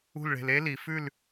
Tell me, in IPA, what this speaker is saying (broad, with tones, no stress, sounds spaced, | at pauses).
ṳ˥˧ l ɭ e̤˧ l e˥ l i˩˧ f ʉ˥˧ l